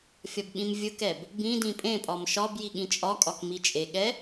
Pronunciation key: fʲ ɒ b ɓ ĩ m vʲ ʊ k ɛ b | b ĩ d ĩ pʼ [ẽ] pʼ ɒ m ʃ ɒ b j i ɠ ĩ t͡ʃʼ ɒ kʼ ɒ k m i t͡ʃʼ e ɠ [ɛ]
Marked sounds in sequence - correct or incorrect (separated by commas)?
correct, correct